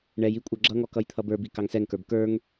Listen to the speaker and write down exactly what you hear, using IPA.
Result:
ɳ ɛ j i kʷʼ ə˞ ɡ͡ǁ ʌ ŋ ɔ k ʌ j t̪ʰ ʌ b ə˞ b i k ɑ ŋ s ɛ ŋ k ə˞ b k ə˞ ŋ

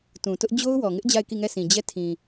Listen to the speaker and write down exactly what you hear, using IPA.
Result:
t ũ˨ t ʊ˦ ʔ d͡ʑ o˦ ʊ̯ w ɔ˨ ŋ ɪ˦ ʔ d͡ʑ a˦˨ ɪ̯ k i˦˨ ŋ ɛ˦˨ sʰ ĩ˨ d͡ʑ ɛ˦˨ tʰ ĩ˨

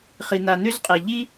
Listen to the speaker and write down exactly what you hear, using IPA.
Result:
χ i˨ n̪ a˨ n̪ ø˦ z qʼ e˨ ʎ i˦

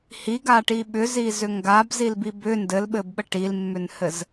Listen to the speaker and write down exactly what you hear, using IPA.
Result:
h i ɡ a ʈ i ɓ ʏ z i z ʏ ŋ ɡ a b z i l b i b ʏ n d ɘ l ɓ ɘ b ɓ ə ʈ i l mː ʏ n h ɘ z

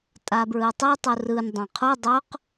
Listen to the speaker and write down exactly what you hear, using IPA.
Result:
tʼ a b ɹ ɯ tˤ ɯ tˤ u r ɯ n dˤ ã qʰ u dˤ o q

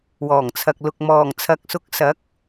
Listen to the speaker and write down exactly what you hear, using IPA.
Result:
w ɔː˨˩ ŋ t͡sʰ ɐ˨ k̚ l ʊ˨ k̚ m ɔː˨˩ ŋ t͡sʰ ɐ˨ k̚ s ʊ˨˥ k̚ s ɐ˨˥ k̚

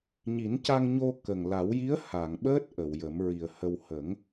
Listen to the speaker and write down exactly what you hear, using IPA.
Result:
ɲ i˨˩˦ n c a˧ ŋ ɲ o˧ k ə˨˩ ŋ l a˨˩˦ w j i˧˥ ə̯ h a˨˩˨ ŋ ɓ əː˦˥ t̚ ʔ ə˨˩˨ w j ə˨˩˦ m ɹ i˨˩ ə̯ h ə˧ w h ə˨˩˦ ŋ

